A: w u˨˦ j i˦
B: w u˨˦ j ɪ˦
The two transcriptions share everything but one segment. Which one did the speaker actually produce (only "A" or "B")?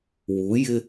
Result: B